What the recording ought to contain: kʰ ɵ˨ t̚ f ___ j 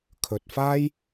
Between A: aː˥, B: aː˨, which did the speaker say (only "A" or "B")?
A